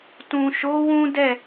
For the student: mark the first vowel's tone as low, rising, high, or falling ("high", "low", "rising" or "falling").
low